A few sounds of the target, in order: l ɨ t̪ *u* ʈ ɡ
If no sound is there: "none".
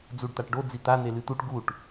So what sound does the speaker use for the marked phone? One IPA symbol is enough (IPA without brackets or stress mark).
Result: u